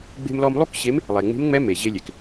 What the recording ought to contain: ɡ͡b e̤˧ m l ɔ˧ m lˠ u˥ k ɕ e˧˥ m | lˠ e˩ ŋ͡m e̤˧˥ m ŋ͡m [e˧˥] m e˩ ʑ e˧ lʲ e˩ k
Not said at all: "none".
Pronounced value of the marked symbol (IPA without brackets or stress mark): ɛ˧˥